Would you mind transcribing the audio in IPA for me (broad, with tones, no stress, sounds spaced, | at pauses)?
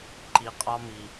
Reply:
ǃ i˨ qʼ ɒ˦ m i˨